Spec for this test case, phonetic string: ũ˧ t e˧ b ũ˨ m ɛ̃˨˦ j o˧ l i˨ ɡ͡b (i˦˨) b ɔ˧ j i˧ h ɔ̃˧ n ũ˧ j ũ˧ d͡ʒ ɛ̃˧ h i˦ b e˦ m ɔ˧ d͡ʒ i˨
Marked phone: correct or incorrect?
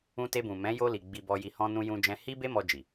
incorrect